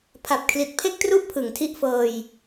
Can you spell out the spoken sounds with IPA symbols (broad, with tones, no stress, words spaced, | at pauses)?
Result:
pʰa˨˩p̚kʰli˨˩t̚pʰe˥˩k̚tru˥˩ʔ pʰɯ˨˩ŋtʰi˥˩ʔfɤː˧j